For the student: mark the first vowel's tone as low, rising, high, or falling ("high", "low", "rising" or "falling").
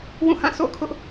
falling